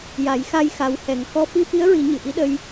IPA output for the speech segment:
ja˨˩˦j xa˧jxa˨˩˦w hɛ˨˩ŋ kɔ˧˥ fi˧fi˧˥ə̯ɹi˨˩˦ ɲɨ˨˩ ʔi˧˥ɗə˧j

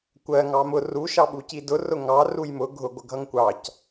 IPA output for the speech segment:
kʷɜ ŋɑmʊ ru ʃɑɓucidʊ rʊŋɑ rujmʊ ɡʱʊ ɡʷəɡʱʌŋkʷɑc

